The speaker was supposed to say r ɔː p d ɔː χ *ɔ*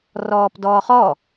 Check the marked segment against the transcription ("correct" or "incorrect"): correct